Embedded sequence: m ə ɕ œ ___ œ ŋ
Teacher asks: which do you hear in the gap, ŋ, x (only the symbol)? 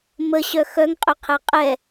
x